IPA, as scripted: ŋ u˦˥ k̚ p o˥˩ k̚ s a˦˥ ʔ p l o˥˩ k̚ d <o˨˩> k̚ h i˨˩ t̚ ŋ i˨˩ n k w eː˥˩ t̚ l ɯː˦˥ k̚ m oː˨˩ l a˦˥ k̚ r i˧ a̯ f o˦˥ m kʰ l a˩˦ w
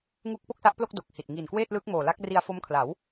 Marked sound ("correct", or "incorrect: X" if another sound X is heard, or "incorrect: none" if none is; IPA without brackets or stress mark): correct